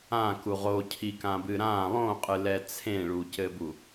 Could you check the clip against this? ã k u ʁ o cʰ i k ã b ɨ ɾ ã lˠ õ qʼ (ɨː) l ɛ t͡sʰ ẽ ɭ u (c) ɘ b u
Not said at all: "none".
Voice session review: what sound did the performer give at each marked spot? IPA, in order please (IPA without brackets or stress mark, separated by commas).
ɨ, c